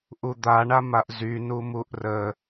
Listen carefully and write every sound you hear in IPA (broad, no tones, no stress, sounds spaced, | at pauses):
ʔ u d̪ a ɳ a m a ʔ z y n u m u ʔ r ə